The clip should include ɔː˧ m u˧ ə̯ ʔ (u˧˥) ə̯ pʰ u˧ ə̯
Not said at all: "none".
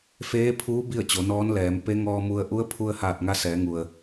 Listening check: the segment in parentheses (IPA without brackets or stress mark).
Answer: u˧˥